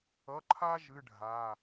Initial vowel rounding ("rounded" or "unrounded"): unrounded